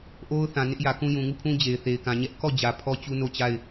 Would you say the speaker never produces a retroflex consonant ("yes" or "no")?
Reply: yes